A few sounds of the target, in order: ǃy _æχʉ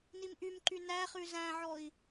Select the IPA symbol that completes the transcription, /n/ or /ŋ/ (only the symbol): n